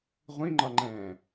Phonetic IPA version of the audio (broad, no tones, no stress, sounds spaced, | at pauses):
ʁʷ ĩ ŋ͡ǃ ɒ ŋ͡ǃ ɛ̃ː